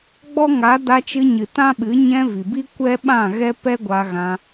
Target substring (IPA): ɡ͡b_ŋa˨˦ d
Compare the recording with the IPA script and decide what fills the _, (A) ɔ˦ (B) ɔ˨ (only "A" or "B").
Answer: A